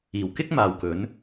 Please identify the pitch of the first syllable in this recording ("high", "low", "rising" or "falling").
low